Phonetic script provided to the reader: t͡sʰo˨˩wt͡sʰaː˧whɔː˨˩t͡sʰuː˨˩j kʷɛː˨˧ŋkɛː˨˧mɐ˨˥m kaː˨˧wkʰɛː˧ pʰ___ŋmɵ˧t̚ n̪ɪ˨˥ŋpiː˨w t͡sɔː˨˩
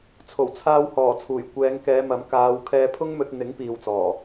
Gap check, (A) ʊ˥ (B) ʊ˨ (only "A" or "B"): A